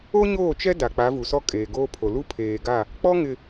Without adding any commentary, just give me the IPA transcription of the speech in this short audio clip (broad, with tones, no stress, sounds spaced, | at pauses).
o˦ ɲ oː˦˨ t͡ʃ ɛ˦ d a˨ k͡p a˨˦ v u˨ s ɔ˦ kʼ eː˨ ɡ oː˦ pʰ o˨ l u˦ pʰ eː˨ ɡ a˦˨ | k͡p ɔ˦ ŋ ɪ˨